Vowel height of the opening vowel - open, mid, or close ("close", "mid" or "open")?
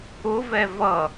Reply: close